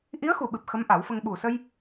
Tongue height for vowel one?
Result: high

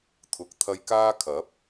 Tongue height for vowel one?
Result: high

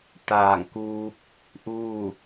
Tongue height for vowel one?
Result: low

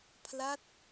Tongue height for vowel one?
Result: low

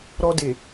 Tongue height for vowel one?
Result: mid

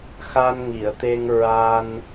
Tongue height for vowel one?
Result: low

